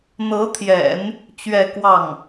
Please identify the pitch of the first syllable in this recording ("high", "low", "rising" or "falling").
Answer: rising